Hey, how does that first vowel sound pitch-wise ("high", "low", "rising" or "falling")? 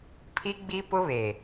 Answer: high